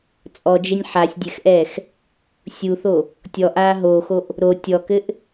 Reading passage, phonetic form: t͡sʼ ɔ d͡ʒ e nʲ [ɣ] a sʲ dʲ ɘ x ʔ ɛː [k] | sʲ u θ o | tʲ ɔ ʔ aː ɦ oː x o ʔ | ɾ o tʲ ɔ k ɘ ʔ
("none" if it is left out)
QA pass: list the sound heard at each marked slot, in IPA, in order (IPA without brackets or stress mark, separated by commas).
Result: ħ, x